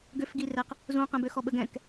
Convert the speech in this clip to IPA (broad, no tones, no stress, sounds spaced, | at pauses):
ɡ ø f ɡ i r ɛ q | z ũ q ɛ̃ b ø x ɔ ɓ ə ɡ ɛ̃ k